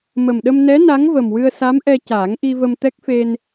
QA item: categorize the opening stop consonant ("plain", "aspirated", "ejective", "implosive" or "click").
implosive